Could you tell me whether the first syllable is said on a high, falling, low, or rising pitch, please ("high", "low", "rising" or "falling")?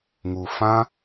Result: low